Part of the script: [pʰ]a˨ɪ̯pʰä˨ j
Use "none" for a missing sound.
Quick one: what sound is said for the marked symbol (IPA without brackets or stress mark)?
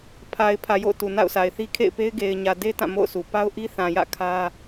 pʰ